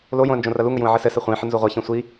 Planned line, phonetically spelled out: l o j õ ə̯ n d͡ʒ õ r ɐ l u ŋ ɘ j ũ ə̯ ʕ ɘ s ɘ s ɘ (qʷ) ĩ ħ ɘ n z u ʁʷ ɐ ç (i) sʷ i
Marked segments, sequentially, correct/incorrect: incorrect: χʷ, incorrect: ĩ

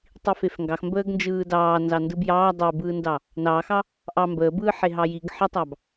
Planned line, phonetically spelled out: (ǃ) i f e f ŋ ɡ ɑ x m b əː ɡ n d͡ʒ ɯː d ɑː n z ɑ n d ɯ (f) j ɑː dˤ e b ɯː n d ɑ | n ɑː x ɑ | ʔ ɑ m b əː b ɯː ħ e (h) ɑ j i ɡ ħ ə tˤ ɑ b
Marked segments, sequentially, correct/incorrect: incorrect: tˤ, incorrect: b, incorrect: ɦ

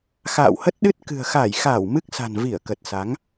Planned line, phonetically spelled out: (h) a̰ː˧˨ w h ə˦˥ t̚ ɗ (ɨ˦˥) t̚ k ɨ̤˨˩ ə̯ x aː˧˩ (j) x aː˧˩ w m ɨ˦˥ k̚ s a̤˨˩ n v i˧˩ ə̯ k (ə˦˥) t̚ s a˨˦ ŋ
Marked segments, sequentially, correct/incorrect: incorrect: x, correct, correct, incorrect: ə˨˩

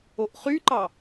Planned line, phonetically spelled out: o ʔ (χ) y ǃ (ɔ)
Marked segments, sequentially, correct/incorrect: correct, incorrect: ɑ

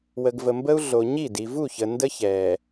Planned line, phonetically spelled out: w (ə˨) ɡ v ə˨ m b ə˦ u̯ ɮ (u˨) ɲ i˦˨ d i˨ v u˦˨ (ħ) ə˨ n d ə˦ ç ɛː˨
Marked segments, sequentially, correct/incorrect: correct, incorrect: o˨, incorrect: ç

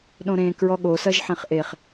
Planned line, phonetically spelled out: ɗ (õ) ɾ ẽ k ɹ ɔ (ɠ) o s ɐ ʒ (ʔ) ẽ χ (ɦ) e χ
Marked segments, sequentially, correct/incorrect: correct, correct, incorrect: ħ, incorrect: ʔ

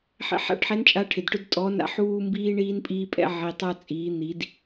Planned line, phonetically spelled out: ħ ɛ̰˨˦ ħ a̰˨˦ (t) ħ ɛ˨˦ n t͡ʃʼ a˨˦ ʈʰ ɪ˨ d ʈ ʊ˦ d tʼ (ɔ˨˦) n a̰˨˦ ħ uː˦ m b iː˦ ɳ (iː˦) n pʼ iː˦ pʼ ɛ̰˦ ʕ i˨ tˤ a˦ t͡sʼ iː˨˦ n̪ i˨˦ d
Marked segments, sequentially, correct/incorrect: incorrect: ʈ, correct, correct

